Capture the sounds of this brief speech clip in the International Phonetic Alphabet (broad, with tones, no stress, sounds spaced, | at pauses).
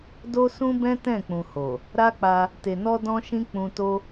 d o˦ s ũ˦ b ɛ̃˦ t ɛ̃˦˨ k͡p ũ˨ h o˨ | ɾ a˦ k͡p a˧ | t e˨ n ɔ˧ d ɔ̃˦ ʃ ĩ˦ k͡p ũ˧ t o˦